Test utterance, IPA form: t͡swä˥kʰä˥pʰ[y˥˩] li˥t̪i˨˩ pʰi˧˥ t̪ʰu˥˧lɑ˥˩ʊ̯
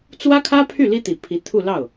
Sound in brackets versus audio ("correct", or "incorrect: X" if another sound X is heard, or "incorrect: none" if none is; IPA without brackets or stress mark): correct